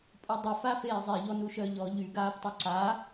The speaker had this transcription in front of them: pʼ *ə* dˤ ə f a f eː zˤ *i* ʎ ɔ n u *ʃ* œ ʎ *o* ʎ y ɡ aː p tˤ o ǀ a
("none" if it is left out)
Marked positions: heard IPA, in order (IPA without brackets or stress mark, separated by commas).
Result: ø, e, ʃ, ɔ